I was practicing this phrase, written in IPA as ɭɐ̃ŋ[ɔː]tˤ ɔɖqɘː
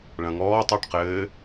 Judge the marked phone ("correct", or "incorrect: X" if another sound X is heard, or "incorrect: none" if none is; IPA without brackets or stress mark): correct